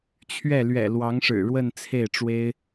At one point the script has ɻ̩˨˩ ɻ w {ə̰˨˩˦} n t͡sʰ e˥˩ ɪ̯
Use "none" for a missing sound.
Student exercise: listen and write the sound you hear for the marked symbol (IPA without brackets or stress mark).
ə˥˧